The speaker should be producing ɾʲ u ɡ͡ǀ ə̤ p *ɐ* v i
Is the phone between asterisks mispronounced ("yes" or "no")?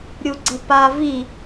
yes